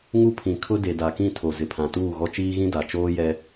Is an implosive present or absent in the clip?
absent